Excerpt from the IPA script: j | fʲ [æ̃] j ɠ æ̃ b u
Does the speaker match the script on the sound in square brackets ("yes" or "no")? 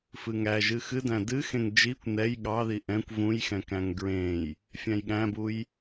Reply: yes